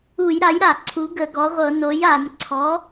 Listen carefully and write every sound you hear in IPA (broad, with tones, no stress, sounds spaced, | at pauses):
u˧˩˧ j ɾ a˩˥ j ɾ a˧˩˧ ǀʰ u˩˥ ɡ ə˧˩˧ ɡ ɔ˩˥ ʁʷ ɤ˧˩˧ n o˩˥ j a˧˩˧ n ǀʰ ɔ˩˥